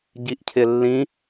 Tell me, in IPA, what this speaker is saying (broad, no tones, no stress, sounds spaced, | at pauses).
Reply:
ɟ i ʔ cʰ ɪ lː ĩ